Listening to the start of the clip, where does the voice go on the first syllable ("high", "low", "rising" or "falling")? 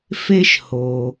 high